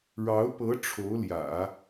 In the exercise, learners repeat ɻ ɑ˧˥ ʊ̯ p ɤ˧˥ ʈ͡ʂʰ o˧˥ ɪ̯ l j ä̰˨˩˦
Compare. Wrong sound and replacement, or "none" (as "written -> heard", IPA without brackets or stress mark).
ɪ̯ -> ʊ̯